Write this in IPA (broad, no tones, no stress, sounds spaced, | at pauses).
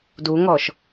d u ŋ ɔ ʃ